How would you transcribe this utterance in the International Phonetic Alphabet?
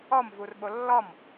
ɔmvurɓo lːɔm

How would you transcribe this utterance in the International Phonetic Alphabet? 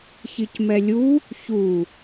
çicmɛlʲu | çu

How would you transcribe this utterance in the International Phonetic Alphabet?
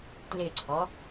tlɪǀʰɔ

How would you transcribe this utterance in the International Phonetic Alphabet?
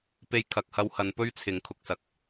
pe˧jkʰɐ˨k̚hɐ˧whɐ˨˧n pɵ˥ɥt͡sʰɪ˨˧ŋkʰʊ˧k̚sɐ˨k̚

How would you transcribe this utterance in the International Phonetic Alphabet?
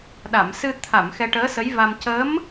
ɗa˨˩˨msɨ˧t̪ʰa˨˩˨m xɛ˧ʈəː˧˥sə˧˥jva˧m cəː˧˥m

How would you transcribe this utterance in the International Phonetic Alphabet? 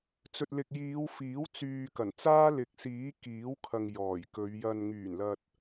t͡sɵ˨t̚lɪ˨k̚jiː˨˧w fiː˨˥wt͡syː˨ kɐ˨˩n t͡saː˥lɪ˨˥k̚siː˨˥ kiː˨˥wkʰɐ˨ŋ jɔː˨˩jkɵ˨˧ɥjɐ˧n ŋyː˨˩nlɐ˨t̚

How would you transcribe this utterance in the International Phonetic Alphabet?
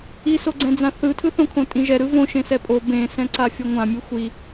isoɡ͡ǀɛ̃d͡zã θɯtʰɯθõkʰõ tʼĩʒɛɾɯ võʃẽsɛ pʼo bẽsɛ̃ǀa fʲʌŋʷãmʲɯ xʷi

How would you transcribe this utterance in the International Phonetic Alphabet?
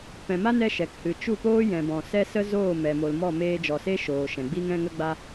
pɛ̃˨ma˦nɛ˧ ʃɛ˨khɨ˨ t͡ʃu˦˨poː˦ jɛ̃˨bɔ̃˨ sɛ˦sə˦ zoː˦˨mɛ˨mo˨l mɔ˦˨meː˧d͡ʒɔ˨se˦ ʃoː˨ʃɛ̃˨ɡ͡bi˦ŋ ɛ̃˦ŋə˦ɡ͡ba˦

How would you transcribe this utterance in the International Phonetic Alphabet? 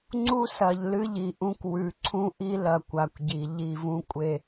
ŋ͡ǀu˦sɐ˨ʎ lɨ˦ʎi˨ʔũ˦k wʉ˨ǀʰũ˦ʔi˦lɐ˨ kʷa˨kʷɟi˨ ʎi˦˨vũ˦kʷʼe˨

